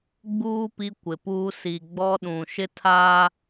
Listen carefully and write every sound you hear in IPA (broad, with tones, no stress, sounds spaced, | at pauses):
ɡ͡b uː˦ p i˦ kʷ ɪ˨ p uː˦ s i˨ ɡ͡b ɔ˦ ɗ ũ˨ ʃ ɪ˦ tʰ aː˦